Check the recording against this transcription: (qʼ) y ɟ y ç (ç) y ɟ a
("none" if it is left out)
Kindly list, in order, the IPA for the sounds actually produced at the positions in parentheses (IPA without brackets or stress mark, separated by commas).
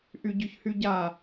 ʔ, h